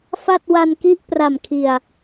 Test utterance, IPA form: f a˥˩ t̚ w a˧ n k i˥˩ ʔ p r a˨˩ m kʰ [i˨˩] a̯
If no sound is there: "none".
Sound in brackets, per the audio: i˨˩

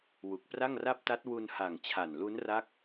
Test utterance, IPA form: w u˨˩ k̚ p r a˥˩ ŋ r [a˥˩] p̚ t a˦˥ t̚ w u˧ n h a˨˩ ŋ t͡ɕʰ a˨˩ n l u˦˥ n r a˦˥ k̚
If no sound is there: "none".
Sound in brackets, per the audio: a˥˩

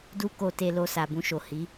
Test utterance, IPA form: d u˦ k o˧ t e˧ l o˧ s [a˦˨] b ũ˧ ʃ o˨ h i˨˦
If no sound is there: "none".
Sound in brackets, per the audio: a˨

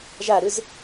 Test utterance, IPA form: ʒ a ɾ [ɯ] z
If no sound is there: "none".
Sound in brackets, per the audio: ɯ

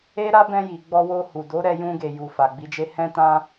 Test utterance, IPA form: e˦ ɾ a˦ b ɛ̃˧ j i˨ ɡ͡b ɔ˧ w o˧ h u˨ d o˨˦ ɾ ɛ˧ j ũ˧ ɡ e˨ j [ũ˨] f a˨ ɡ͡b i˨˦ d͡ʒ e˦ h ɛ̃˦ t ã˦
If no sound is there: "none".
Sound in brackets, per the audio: u˨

